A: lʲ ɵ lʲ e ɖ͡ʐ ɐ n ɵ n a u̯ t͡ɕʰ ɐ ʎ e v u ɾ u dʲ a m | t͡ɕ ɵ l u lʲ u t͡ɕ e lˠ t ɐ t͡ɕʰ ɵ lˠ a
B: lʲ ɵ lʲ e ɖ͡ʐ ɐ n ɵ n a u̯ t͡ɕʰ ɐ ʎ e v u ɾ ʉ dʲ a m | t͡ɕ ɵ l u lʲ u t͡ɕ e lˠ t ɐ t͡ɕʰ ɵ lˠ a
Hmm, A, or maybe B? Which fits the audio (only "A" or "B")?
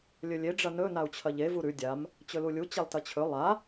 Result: B